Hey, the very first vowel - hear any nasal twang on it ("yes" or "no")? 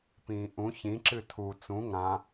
yes